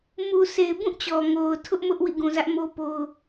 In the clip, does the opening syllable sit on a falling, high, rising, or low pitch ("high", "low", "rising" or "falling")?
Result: low